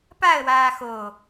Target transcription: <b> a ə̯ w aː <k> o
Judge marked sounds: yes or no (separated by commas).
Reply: no, no